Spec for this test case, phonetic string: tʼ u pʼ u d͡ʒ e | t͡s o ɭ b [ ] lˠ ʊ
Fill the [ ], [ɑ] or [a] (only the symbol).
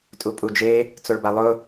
a